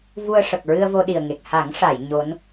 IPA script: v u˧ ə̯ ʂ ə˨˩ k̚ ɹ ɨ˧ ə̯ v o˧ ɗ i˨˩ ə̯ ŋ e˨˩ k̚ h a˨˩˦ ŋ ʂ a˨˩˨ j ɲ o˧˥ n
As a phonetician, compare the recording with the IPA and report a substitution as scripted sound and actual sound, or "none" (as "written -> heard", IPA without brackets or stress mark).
none